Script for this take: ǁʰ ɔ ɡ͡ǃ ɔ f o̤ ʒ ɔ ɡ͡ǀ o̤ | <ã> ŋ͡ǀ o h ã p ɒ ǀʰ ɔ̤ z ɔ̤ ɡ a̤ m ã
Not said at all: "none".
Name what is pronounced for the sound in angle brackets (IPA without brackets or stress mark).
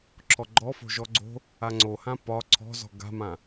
a